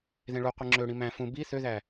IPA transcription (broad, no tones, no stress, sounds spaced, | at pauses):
ð ẽ ɭ u qʷ ɯ ŋ͡ǁ ø ɽ ĩ m æ̃ f ũ b i θ ø ð æ